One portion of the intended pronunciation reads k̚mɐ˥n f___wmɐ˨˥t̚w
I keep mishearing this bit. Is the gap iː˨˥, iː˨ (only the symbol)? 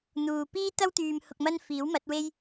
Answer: iː˨˥